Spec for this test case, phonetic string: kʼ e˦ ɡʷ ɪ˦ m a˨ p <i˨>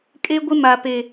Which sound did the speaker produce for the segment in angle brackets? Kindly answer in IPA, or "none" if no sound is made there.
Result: e˨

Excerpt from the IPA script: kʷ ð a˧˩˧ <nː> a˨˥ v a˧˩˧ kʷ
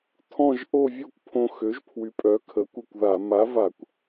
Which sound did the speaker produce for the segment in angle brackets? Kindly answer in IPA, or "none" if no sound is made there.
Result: m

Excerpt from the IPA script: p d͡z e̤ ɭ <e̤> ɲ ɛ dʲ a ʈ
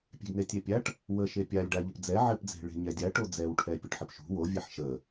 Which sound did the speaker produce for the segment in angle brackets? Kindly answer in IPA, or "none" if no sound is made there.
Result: e̤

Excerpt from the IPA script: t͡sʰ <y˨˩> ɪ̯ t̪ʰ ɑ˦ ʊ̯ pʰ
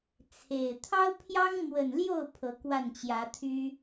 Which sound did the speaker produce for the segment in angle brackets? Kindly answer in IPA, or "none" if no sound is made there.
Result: e˨˩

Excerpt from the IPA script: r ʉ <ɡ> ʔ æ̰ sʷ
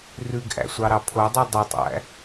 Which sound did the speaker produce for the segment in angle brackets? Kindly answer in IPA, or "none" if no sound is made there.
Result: ɡ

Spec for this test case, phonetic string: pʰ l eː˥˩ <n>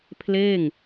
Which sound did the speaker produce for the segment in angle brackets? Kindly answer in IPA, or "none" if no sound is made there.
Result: ŋ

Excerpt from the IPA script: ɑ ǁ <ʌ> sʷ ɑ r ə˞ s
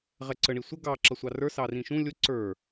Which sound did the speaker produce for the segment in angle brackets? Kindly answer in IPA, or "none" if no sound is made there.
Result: ʌ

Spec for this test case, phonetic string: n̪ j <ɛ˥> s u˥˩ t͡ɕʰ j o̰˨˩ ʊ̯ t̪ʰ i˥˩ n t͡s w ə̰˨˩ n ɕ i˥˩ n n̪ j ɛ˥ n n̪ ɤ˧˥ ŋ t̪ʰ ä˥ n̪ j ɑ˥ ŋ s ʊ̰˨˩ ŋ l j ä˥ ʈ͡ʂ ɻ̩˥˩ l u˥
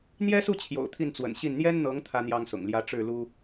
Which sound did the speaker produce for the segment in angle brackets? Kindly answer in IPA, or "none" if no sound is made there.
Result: ɛ˥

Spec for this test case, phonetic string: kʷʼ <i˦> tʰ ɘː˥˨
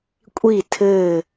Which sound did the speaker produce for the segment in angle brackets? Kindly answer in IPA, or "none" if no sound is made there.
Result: i˥˨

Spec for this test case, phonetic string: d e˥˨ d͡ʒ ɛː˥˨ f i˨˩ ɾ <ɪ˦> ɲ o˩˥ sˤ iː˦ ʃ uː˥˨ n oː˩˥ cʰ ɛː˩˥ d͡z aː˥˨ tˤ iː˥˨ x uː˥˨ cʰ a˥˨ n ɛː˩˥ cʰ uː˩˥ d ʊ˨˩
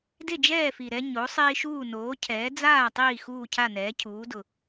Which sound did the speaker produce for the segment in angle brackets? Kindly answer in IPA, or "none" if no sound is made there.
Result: ɛ˦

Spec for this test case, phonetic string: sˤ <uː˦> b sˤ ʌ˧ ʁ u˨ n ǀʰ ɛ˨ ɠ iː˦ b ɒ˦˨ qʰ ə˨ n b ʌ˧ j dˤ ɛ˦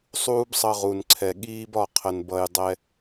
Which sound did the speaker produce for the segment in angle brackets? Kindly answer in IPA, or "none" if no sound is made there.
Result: uː˦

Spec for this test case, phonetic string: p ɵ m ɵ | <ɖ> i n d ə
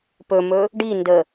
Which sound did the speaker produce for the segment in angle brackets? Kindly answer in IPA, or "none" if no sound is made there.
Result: ɖ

